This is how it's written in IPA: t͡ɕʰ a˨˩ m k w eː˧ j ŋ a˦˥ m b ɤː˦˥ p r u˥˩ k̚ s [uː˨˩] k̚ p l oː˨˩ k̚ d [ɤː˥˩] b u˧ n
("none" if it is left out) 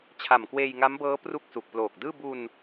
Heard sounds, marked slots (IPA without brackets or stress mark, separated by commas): u˨˩, ɯː˥˩